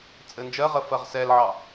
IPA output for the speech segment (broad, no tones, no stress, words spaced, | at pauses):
t͡sʼɘnd͡ʒɜʁə fɜʁsɛlʕɑ